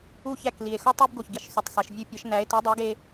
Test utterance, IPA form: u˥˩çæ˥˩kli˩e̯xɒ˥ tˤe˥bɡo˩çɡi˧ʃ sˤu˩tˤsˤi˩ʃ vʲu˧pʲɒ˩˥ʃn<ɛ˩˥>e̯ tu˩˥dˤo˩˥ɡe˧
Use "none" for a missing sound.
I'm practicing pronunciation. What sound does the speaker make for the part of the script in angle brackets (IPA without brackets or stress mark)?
æ˩˥